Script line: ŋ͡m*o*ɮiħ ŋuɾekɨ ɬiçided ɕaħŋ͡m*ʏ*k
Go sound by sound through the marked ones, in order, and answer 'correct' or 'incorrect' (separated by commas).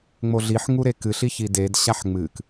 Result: correct, incorrect